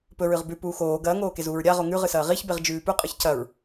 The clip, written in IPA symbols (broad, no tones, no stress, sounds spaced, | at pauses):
p ɵ ɹ ɨ ʁ b ʉ p uː x oː ɡ ɐː ŋ oː k e z uː ɹ ɾʲ a ʁ o ŋ ʉ ʁ ɨ s ɐː ʁ i ç b e ʁ d͡ʒ ʉː p ʉ qʼ ɨ ç c ɐ ɹ